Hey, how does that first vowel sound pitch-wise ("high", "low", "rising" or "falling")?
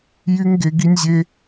high